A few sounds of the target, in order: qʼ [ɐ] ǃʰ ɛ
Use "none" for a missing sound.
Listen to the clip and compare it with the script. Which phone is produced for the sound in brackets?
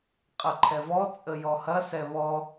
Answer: ɐ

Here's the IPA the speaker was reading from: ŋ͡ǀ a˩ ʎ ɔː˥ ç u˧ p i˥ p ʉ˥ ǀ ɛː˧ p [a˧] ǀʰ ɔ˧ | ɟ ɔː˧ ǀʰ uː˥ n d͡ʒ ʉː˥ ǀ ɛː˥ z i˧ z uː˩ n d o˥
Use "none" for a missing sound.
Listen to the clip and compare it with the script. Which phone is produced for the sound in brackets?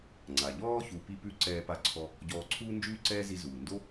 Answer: a˧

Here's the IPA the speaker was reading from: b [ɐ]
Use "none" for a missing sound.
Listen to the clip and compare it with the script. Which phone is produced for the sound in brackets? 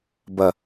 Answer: ɐ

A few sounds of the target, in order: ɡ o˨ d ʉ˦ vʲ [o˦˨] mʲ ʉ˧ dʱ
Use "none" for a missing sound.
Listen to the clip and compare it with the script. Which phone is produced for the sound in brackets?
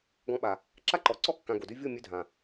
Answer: o˦˨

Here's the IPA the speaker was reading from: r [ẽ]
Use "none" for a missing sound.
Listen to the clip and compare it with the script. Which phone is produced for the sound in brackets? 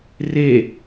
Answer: e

